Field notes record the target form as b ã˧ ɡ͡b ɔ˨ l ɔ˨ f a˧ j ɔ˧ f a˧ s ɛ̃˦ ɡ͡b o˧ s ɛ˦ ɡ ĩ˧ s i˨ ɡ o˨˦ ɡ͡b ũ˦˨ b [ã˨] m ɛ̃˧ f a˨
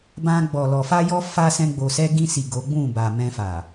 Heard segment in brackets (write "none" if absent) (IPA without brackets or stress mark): a˨